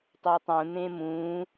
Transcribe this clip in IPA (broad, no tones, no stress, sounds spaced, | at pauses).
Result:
tˤ e tˤ ũ n̪ ẽ m ũ